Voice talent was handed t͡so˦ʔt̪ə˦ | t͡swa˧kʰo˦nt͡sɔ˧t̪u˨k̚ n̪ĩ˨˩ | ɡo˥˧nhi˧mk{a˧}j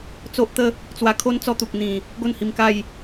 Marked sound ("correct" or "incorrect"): incorrect